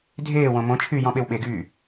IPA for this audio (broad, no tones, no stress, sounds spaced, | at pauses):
dʱ eː w õ m õ t͡ʃʰ yː j ɔ̃ ɓ e w ɓ e ɡ yː